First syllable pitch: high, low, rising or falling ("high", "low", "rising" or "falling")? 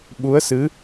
rising